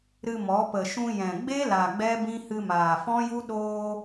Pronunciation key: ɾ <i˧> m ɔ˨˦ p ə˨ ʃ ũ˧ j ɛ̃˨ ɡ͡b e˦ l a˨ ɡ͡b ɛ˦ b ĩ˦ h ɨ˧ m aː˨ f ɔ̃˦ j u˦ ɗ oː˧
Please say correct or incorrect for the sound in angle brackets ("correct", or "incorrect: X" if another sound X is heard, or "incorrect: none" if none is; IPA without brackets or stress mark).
incorrect: ɨ˧